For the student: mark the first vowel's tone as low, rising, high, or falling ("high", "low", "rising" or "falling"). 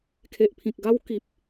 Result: low